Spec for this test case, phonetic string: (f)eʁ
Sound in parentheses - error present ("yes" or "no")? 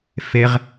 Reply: no